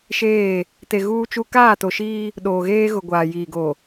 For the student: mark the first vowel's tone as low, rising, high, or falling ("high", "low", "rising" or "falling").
falling